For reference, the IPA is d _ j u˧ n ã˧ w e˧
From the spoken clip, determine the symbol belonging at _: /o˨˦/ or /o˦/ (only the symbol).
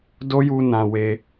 o˦